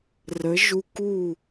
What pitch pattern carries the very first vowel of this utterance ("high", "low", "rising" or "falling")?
rising